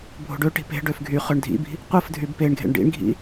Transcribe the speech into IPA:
bʱo̤ɖøʈi̤ pe̤ɖøf ɡʱyχøɳ dʱḭbi̤ | qʷɯf dʱybpeɳɡʱḛɳ ɖḭɳɡʱḭ

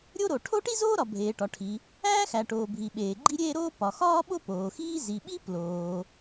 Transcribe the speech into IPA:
ɾʲo˥ɾo˩ ʈʰo˥ʈi˥ zoː˥ɾɒ˩ bʱeː˩ʈɒ˩ʈʰi˩ | æː˥xæ˩ʈoː˩bʱi˩ ɓeː˩ɡ͡ǃi˥ɾʲeː˥ ɾoː˥ pɒ˩xɒː˥ɓo˥ poː˩xiː˥ zi˩ɓi˥ ploː˩

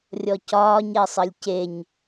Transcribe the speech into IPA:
rʲɔcɒːɲ ɛsˤəlʲceɲ

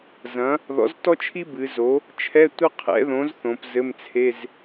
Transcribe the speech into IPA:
zɐ̃˩˥ | ðɔ̰˩˥ztɔ˥t͡ʃʰi˥ bɨ˩˧zo˩˥ | t͡ʃʰɛ˧˥˧tʷɐ˥qʰɛ̰˩˥ðõ˩˥z θõ˩˧pzɘ˧˥˧mt͡sʰe˧˥˧z

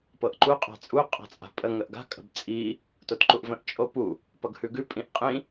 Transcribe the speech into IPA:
pɤʔǃu qʼa̤t͡sʼu qʼa̤t͡sʼa̤pʼə ŋəʔɡa̤ kʼə̤bt͡sʼi | totǃuʔvə̃ʔ t͡ʃʼopu | pʌɡhʉɡʉ pʼĩʔqʼĩ

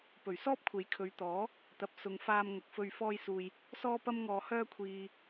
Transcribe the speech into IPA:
pɵ˨˩ɥsɔː˥p̚kʷʰe˨˥j kʰɵ˨˧ɥt̪ɔː˨˥ | t̪ɐ˨p̚sʊ˨ŋ faː˧mŋɐ˨k̚fɵ˧ɥ fɔː˧jsuː˨j | sɔː˥pɐ˥mŋɔː˧ hœː˥kʷʰiː˧

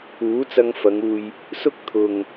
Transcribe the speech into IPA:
uː˨˥t͡sɐ˧ŋfɐ˨˧ŋ uː˨j | sʊ˥k̚ t̪ʰʊ˨ŋ

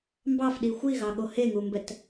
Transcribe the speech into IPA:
mbɑfɗi xʷiɣɑɠo heŋumbɛt

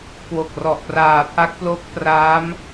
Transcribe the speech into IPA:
kwo˨˩k̚rɔ˨˩ʔ praː˨˩pʰa˦˥k̚plo˦˥k̚praː˦˥m

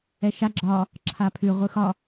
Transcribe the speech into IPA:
ɛʃa ɡ͡ǁɒ | ǁʰapʰʉʁʷɯ xɒ

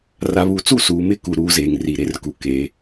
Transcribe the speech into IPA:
ra˨βu˨˦t͡su˦˨ suː˨mɪ˦˨ku˨ ɾuː˦zeː˨ŋri˨ ɾe˦rku˨ ke˨˦

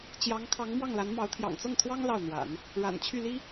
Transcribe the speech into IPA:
t͡ɕjɑ˧˥ŋ kʰɑ˧˥ŋmwɑ˥˩ŋla˧˥nmɑ˧˥ʊ̯ t̪ʰjɑ̰˨˩ŋt͡sɤ˥˩ŋt̪ʰwɑ˥ŋ lɑ˥˩ʊ̯n̪wa̰˨˩˦n | ɻa̰˨˩nt͡ɕʰy˥˩li˥

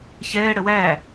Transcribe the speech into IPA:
çɛː ɽəwæ

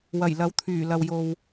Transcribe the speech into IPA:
wɐ˨˩jlɐ˨˥wt̪ʰyː˨˩ lɐ˨w jo˨w

